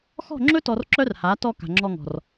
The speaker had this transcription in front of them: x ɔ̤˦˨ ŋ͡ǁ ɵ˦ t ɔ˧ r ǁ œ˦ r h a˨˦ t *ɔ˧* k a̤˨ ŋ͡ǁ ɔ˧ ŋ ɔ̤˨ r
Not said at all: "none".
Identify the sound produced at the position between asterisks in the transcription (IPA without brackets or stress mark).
ɔ˧